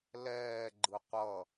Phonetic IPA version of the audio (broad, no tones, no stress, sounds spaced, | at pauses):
l ɛː ɡ͡ǃ ɯ qʷ ʌ